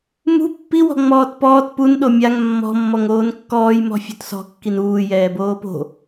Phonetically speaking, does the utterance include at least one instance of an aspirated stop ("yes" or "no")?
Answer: no